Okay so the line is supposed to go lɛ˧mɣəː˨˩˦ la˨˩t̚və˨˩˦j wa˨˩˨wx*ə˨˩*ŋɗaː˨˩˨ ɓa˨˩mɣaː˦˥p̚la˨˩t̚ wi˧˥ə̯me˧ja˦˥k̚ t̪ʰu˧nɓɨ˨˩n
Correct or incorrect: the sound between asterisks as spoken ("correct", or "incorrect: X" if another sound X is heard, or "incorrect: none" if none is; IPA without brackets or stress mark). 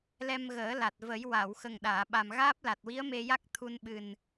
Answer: correct